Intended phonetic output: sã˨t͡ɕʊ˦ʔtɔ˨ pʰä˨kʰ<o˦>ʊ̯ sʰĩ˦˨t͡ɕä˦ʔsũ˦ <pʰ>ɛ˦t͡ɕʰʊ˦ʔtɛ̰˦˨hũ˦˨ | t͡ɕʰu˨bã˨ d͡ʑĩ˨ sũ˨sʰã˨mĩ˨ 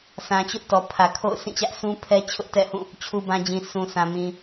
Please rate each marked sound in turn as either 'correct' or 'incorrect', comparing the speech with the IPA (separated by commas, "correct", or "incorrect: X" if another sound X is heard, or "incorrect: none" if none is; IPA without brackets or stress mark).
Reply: incorrect: o̰˦˨, correct